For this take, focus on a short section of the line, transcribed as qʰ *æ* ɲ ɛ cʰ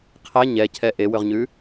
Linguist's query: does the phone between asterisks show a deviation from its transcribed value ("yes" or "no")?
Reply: no